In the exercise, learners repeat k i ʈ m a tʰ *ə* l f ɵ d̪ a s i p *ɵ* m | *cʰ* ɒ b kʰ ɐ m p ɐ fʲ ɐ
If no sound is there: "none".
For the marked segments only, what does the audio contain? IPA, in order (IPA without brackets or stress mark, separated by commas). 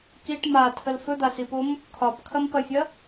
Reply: ə, o, kʰ